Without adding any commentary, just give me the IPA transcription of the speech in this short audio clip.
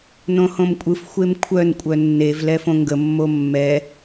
n õ h õ m kʷʼ ɯ f xʷ e m kʷʰ œ n kʷʼ œ nː e v l ɛ f õ ŋ ɡ ə mː o mː ɛ

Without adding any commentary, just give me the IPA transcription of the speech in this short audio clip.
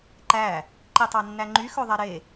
ǃ æ | ǃ i tˤ ɑ nː æ ŋ͡ǃ y x ɵ ðˤ ɛ ɾ e

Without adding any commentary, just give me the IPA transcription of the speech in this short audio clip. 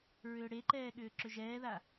ɹ ʏː ɽ e ǃ ɛː ɠ ʏː ǁ ʏ ʒ ɛː ð a

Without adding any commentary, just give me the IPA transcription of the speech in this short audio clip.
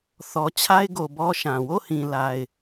θ ɔ˨ t͡ɕʰ a˦ ɪ̯ ɡ o˨ b ɔ˦ ʃ ã˨ w o˦˨ h ĩ˨ l a˦ ɪ̯

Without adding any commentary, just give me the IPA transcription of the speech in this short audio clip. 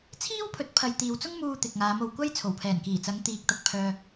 t͡sʰ iː˥ w pʰ ɵ˨˥ t̚ pʰ ɐ˨ j t̪ iː˨ w t͡s ʊ˥ ŋ m uː˧ t̪ ɪ˨ k̚ ŋ aː˨˧ m o˨ w kʷ ɐ˥ j t͡sʰ o˨˩ w pʰ ɛː˨˩ n k iː˨˩ t͡s ɐ˨˧ ŋ t̪ iː˨ k̚ t̪ ɐ˧ k̚ pʰ œː˥

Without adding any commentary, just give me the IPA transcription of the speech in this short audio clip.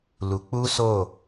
l u˨ k͡p u˦ s o˦˨

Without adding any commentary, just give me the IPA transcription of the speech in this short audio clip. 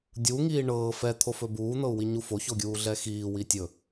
dʲ u ŋ iː ɳ ɤː f ɛ t̪ʰ o f ɵ b uː n̪ ɤ u̯ w i ɲ u f o ç o ɡʲ uː ɮ ɛ x iː w i tʲ ɵ

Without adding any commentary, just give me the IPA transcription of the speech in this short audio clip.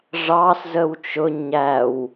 ʐ ɑ s z ə w t͡ʃ ʊ ɲ æ w

